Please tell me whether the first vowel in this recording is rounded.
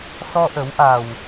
yes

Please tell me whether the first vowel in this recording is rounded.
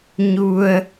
yes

